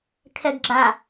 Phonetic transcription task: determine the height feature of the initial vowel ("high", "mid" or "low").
mid